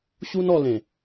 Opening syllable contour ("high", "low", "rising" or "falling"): high